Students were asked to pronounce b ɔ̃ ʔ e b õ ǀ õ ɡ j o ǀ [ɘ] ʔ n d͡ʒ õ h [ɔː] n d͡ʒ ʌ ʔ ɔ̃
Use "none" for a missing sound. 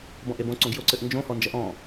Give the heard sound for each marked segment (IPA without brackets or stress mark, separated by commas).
ɘ, ɔ